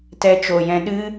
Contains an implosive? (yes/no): yes